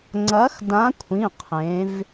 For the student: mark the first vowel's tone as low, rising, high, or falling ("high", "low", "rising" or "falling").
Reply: rising